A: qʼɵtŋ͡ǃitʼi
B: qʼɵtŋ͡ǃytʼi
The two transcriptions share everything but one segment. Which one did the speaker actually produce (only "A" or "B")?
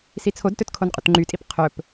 B